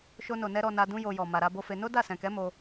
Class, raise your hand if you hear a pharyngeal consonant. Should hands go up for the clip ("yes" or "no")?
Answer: no